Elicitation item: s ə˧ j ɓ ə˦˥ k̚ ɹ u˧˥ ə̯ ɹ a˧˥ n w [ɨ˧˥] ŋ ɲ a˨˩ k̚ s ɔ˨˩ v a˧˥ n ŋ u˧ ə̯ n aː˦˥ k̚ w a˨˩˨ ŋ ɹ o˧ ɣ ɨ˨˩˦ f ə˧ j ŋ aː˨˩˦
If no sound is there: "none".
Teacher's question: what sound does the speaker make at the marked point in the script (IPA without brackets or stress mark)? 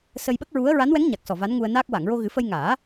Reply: ɛ˧˥